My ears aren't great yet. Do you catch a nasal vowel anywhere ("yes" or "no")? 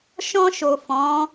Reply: yes